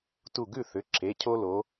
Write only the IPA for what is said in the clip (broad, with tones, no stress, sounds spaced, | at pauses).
t u˧˩ ɡ ʉ˥˩ θ ʏ˩˧˩ ǁʰ e˩˧˩ cʰ o˦ l o˨˦